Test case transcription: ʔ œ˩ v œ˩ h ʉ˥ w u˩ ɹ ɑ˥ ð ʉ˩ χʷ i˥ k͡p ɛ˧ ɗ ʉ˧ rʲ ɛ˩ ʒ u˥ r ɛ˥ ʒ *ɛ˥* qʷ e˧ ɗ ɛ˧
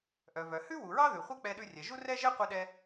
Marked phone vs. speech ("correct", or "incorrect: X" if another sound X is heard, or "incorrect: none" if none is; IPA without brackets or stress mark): correct